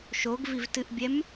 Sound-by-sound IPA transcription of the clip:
ʃoɡvivtɨʔbʲɛm

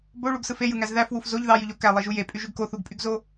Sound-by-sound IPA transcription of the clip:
boɭuɡsɯf ejɯŋæz ðæfwuf zoʎ ðɑjyʎo kælˠiʒu jepʼyʒyɡ koθuɡpʼyɡzo

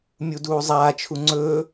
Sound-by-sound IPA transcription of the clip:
mʲuduːzˤaːt͡ʃʰu ŋ͡ǀɵː

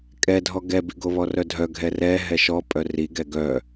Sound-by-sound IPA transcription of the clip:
kʼɛdʱɔ ɡɛbi ɡoβɔrœdʱœ ɡʱɛrɛ ɦɛʃɔ pʼœriɡɛ ɡœ

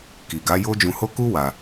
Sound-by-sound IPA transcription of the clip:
ki˨ɡa˨˦jo˦ d͡ʒũ˧ho˦ ku˦ wa˧

